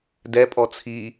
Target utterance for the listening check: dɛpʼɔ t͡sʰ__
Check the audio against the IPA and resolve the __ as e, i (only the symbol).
i